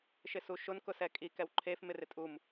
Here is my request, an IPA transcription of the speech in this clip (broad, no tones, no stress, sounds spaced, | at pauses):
ʃ ɪ s u ʃ ʊ n k ʊ s ɛ kʼ i k ɛ w ǃʰ e f m ɪ r ɪ tʼ u m